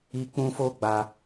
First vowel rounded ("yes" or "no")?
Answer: no